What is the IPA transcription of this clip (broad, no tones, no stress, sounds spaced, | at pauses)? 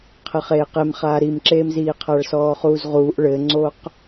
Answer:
qʰ ɘ χ eː q e m χ aː ɾ i m ǁ eː m z iː qʰ a ɭ s ɔː χ uː z ʁ uː ʔ ɭ ɘ ŋ͡ǀ o q